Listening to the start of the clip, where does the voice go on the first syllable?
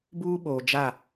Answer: high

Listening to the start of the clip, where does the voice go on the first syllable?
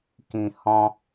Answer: low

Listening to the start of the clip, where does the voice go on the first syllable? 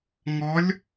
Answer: rising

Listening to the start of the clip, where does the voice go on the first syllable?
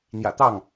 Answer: low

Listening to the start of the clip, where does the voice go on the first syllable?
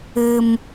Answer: low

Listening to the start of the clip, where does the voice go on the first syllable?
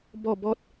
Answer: falling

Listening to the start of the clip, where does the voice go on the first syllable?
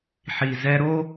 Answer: low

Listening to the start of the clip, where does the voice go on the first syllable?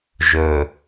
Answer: low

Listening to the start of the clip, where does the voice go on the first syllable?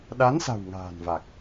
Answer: rising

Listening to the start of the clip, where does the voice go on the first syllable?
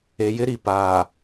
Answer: low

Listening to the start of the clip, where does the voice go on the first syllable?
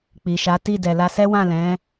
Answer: low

